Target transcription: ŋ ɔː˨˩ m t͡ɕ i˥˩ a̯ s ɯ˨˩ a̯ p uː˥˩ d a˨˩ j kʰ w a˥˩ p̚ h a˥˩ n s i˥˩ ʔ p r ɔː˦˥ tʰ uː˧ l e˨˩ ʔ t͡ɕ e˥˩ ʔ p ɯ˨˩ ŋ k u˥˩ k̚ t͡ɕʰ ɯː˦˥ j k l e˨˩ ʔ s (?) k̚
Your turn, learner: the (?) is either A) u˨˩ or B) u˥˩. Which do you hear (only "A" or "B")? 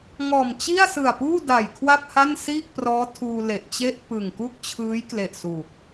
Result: A